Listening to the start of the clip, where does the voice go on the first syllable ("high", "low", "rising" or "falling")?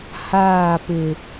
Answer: falling